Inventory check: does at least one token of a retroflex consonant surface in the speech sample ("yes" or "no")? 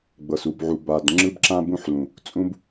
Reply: no